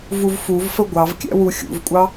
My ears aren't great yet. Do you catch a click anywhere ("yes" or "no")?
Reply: no